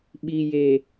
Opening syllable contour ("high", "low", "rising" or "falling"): low